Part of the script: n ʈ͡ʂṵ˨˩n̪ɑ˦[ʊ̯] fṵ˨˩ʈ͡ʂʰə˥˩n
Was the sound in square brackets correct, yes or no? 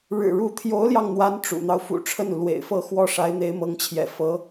yes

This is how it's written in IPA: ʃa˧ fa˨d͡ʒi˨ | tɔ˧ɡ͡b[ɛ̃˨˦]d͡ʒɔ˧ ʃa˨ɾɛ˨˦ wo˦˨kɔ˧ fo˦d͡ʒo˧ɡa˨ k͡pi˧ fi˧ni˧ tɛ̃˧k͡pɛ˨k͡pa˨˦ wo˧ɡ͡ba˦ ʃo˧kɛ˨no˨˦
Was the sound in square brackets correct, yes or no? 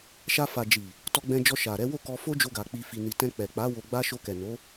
no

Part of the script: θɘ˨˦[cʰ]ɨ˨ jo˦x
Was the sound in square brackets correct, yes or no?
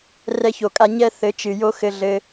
no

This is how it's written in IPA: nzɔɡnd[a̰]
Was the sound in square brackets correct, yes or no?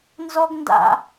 yes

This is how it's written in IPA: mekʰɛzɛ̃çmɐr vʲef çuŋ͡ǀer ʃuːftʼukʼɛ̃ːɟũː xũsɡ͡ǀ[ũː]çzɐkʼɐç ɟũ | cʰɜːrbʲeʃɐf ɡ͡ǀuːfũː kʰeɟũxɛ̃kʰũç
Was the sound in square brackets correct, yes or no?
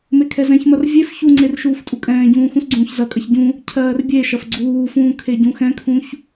yes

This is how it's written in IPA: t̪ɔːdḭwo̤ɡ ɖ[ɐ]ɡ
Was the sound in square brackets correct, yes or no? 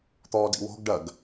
yes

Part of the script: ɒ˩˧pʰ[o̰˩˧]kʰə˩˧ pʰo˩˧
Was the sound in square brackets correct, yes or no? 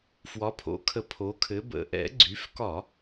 yes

